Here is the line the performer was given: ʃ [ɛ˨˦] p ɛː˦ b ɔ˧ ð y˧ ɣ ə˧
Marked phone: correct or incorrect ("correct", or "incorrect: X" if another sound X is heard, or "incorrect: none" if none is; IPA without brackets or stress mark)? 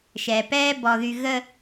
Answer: incorrect: ɛ˨